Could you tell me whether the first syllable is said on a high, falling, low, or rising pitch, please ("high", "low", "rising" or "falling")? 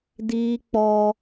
high